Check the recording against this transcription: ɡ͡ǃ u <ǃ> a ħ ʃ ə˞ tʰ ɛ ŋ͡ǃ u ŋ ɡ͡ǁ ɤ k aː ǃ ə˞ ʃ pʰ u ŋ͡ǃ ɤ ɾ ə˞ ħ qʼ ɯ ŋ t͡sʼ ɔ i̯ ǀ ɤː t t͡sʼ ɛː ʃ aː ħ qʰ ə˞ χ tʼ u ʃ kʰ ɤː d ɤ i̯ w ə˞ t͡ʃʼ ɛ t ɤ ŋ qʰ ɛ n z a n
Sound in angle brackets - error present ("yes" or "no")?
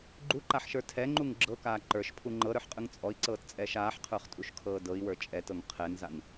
no